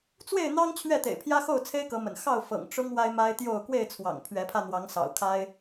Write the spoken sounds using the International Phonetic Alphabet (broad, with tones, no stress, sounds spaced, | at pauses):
t͡s w e˥˨ ɪ̯ n̪ ɑ˦ ŋ t͡ɕʰ ɥ ɛ˥˨ t̪ ḛ˨˩ ɪ̯ pʰ j ä˦ x o˥˨ ʊ̯ t͡sʰ e˦ ɪ̯ k ɤ˨˦ m ə̰˨˩ n x ɑ˥˨ ʊ̯ f ɤ̰˨˩ ŋ ʈ͡ʂ ʊ˦ ŋ w a˦ ɪ̯ m a˦ ɪ̯ t̪ j o˥˨ ʊ̯ k w e˥˨ ɪ̯ t͡sʰ w ɑ̰˨˩ ŋ pʰ ɥ ɛ˨˦ pʰ ä˧ n̪ w ɑ˨˦ ŋ s ɑ̰˨˩ ʊ̯ kʰ a˦ ɪ̯